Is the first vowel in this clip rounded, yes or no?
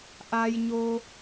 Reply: no